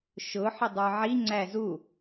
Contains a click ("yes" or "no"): yes